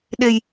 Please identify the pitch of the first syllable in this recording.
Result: low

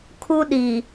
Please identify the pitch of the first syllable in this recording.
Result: high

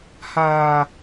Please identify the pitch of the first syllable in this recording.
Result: high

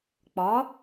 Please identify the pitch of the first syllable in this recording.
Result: rising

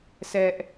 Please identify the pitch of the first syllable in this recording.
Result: high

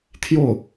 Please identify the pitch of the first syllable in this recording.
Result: falling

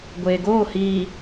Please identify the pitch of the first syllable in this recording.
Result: low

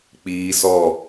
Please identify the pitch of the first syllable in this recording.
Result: high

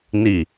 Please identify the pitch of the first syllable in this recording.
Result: low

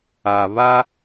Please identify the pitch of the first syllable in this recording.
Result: low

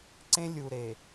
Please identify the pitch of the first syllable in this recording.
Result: high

